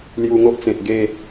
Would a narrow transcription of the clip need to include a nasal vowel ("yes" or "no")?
yes